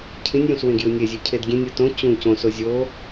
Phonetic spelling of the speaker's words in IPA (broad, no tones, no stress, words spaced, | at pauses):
cʰĩnʲjũs wẽɡjunʲezʲʉ cʰedɡʲẽnʲɯ tõ t͡ɕũ cõso zʲo